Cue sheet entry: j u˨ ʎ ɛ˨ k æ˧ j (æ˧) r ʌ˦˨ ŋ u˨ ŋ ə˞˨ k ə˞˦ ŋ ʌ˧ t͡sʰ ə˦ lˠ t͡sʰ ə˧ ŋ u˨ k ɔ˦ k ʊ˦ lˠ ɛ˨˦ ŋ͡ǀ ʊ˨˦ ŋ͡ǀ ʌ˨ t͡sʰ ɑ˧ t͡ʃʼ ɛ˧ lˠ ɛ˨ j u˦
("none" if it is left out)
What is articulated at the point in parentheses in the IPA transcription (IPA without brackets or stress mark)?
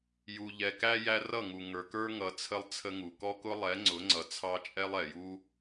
æ˧